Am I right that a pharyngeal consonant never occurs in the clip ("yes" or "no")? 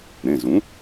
yes